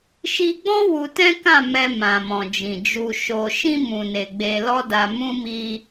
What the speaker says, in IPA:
ʃ i˧ ɡ͡b ɔ̃˦ w u˧ t ɛ̃˦ k ã˦˨ m ɛ˧ m ã˨ m ɔ̃˨ d͡ʒ ĩ˨ d͡ʒ u˧ ʃ o˧ ʃ ĩ˧ m ũ˨ n e˨ ɡ͡b e˧ l ɔ˦ d a˧ m ũ˦ m i˧

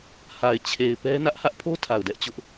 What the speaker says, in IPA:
h a˨ ɪ̯ t͡ɕʰ e˨ ɪ̯ p ɛ˦ n ä˦ ʔ h ä˦ ʔ pʰ o˦ tʰ a˨ ʊ̯ d ɛ˦ ʔ t͡ɕ ʊ˦ ʔ

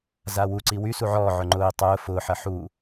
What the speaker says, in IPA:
z a w u ǀ i w y s u ʕ ɔː ʕ ʊ ŋ͡ǃ ʊː i̯ tˤ ʊː f ʊː ħ ɐ ħ u

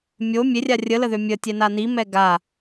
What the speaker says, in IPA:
mʲ o mʲ e rʲ a rʲ ə l ə ð ø mʲ ə tʲ ɛ n a n i m ɛ ɡ a

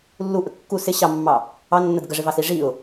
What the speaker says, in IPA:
lː u ʔ ə kː u s ɪ ɕ ɑ mː ɑ | ɑ nː ə d ɡ ə ʐ ɪ v ɑ s i ʐ i ʊ̯

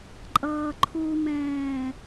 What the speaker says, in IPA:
ǃʼ ʌː ǃʰ u m ɛ̃ː

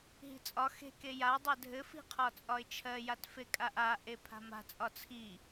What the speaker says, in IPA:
ɦ i̤ t͡sʼ ɒ x e̤ k e j a dˤ ɜ dʱ ɘ f i̤ qʰ ɒ t͡sʼ ɒ ɪ̯ t͡ʃʰ ɜ j a t f e kʼ a ʔ a ʔ e pʰ a̤ m a̤ t͡sʼ ɒ t͡sʰ i

